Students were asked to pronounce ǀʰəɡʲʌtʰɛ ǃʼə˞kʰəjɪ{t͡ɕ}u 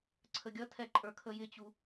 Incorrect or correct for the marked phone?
correct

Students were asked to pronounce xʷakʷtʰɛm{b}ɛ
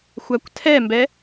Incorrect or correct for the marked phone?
correct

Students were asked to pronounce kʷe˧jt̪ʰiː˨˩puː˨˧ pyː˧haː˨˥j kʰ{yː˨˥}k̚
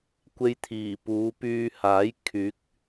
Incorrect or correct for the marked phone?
correct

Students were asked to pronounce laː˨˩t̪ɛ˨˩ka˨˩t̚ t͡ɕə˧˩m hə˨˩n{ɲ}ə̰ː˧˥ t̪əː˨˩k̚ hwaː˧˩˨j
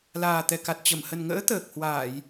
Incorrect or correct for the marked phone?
incorrect: ŋ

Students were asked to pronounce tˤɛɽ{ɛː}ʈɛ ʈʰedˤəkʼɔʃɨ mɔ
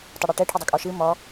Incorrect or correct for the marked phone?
incorrect: ɛ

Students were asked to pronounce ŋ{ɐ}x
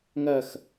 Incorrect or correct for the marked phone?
correct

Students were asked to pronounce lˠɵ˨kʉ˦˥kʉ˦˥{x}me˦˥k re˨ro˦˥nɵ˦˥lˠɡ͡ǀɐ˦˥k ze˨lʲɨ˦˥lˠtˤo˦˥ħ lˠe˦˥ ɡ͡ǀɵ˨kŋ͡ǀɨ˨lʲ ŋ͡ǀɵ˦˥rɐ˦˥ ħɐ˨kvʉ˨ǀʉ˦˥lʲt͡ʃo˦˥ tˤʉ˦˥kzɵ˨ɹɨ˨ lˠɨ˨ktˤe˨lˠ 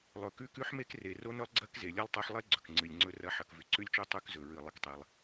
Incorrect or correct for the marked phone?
incorrect: ħ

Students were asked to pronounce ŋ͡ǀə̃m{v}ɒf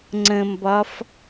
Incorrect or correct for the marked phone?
incorrect: b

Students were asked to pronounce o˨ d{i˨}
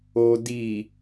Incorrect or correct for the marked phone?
correct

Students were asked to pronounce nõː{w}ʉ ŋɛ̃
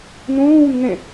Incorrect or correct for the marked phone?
correct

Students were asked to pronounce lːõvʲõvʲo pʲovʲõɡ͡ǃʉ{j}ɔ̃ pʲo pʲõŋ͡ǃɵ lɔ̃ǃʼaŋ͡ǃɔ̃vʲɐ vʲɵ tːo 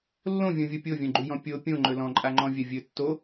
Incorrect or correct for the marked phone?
correct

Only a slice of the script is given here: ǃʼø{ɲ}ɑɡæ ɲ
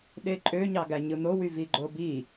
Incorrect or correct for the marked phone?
correct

